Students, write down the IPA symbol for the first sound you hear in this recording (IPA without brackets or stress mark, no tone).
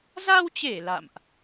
z